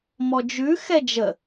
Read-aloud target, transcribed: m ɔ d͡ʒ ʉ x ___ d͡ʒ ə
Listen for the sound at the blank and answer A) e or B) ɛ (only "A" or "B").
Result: B